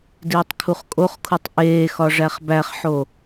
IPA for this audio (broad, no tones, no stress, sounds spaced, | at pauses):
d iː tˤ kʰ u χ kʼ o χ kʰ u tˤ ʔ eː x ɒ ʐ æ χ b æ χ ħ o